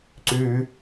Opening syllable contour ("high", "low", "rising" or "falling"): low